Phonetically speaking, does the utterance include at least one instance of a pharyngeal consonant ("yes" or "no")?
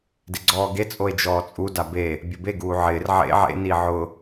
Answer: yes